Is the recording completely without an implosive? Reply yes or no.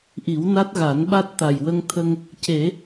no